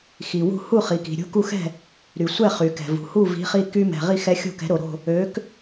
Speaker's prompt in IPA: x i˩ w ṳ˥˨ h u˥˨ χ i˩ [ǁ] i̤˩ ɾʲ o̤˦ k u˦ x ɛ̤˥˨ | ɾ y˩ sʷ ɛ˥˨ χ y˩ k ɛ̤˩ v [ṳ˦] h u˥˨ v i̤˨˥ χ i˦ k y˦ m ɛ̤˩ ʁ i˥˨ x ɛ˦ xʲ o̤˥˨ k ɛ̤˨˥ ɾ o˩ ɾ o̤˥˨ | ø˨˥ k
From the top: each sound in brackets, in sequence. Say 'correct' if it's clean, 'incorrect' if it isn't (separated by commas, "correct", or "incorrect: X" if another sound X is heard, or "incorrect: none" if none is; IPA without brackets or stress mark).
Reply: incorrect: k, incorrect: ṳ˩